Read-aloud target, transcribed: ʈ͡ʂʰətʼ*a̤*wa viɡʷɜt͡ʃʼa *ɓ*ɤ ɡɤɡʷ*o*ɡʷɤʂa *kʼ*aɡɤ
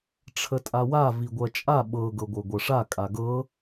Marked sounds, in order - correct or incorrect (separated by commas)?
incorrect, correct, incorrect, correct